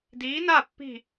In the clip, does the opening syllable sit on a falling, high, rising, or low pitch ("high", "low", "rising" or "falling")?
rising